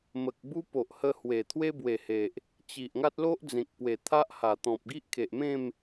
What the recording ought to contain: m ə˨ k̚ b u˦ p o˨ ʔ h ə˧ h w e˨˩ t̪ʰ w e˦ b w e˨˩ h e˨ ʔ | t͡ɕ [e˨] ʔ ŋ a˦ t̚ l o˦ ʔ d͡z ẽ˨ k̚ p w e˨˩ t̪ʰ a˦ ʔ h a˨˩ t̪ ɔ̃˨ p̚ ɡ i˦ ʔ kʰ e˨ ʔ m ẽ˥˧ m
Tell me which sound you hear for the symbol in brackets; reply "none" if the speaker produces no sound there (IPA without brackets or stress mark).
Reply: i˨